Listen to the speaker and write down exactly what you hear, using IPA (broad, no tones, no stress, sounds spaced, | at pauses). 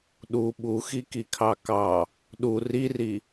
ɗ u ɓ u x i k i kʰ ɑ k ɑ | ɗ u r i r i